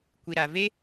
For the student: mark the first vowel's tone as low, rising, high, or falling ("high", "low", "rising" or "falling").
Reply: low